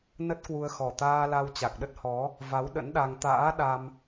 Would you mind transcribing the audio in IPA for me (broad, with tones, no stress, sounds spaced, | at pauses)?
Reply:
n ə˦˥ t̚ k w u˧ ə̯ x ɔ˨˩ t̪ aː˧ l a˧ w t͡ɕ a˨˩ k̚ ɗ ə˦˥ t̚ h ɔ˨˦ | v a˨˦ w ɗ ə̰˧˥ n ɗ a˧ ŋ t̪ a̰ː˧˥ ɗ a˧ m